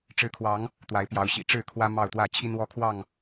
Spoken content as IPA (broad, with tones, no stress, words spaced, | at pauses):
ʈ͡ʂɻ̩˨˦kʰwɑ˨˦ŋ | t̪wa˨˦ɪ̯pjɑ˨˦ʊ̯ɕḭ˨˩ ʈ͡ʂɻ̩˥˨kʰwä˦ mɑ˥˨ʊ̯t̪wä˥˨ t͡ɕʰi˦nwɔ˦kʰwɑ˥˨ŋ